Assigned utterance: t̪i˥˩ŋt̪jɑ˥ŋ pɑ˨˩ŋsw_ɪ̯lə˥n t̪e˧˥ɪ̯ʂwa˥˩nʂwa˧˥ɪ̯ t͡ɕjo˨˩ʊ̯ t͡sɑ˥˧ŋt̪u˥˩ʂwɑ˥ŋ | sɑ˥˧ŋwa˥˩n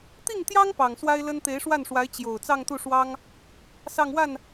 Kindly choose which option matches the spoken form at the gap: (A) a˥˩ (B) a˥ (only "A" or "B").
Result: B